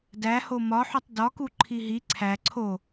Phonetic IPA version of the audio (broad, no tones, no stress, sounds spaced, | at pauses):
d æ h o m ɒ ħ u tˤ d ɒ k u ǃʰ i ɦ i ǀʰ æ ǀʰ o